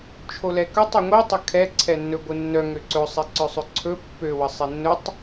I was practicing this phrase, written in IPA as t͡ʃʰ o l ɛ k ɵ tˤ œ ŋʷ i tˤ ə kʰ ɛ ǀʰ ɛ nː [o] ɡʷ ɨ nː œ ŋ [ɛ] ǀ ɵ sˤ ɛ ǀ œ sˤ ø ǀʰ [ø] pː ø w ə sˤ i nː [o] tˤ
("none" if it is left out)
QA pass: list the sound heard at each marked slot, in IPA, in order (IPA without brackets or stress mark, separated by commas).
ɵ, ø, ɵ, ɵ